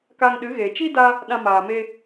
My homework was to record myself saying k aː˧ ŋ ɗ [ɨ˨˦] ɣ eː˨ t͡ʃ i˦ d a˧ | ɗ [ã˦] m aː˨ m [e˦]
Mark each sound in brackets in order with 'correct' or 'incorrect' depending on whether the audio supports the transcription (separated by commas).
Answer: correct, incorrect, incorrect